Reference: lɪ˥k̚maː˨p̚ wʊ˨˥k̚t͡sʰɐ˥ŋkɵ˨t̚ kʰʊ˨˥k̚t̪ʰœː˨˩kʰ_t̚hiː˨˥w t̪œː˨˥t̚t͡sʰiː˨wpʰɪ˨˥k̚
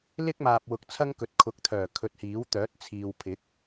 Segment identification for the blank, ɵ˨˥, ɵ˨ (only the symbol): ɵ˨